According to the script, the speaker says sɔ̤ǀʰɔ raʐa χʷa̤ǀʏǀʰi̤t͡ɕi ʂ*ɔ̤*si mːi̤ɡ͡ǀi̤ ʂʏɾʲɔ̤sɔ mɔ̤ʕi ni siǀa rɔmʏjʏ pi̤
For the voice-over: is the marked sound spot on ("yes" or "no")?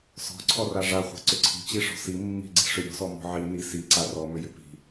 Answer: yes